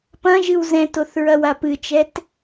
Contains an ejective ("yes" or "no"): no